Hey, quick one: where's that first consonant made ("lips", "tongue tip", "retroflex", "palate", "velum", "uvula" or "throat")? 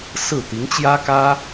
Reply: tongue tip